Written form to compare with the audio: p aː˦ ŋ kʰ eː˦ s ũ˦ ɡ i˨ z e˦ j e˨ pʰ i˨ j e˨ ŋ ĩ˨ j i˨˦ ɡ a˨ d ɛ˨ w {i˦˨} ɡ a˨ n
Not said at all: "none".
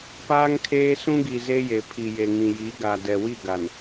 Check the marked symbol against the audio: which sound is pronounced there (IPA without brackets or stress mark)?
i˦˨